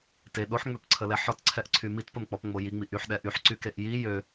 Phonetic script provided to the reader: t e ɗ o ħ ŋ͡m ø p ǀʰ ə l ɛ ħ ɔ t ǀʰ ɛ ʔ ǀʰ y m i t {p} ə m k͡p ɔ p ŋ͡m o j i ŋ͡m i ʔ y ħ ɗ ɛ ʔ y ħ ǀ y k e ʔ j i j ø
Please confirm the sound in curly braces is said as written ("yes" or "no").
yes